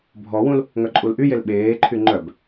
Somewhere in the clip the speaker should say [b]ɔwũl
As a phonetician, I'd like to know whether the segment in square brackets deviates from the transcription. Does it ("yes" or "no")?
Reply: yes